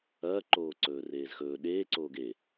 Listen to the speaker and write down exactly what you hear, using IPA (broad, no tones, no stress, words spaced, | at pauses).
ɐː ǃoːǀɵːreːzxɵː ɗeː ǀoːɡe